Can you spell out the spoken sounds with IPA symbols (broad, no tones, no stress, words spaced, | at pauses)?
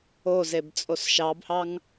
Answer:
ozeb t͡sʼosʃɑbhɑŋ